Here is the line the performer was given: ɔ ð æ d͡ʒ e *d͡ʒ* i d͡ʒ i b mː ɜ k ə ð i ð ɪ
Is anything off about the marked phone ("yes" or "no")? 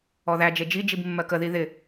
no